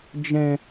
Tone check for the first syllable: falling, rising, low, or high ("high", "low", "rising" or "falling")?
low